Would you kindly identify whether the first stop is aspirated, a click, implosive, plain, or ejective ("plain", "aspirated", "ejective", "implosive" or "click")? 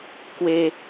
plain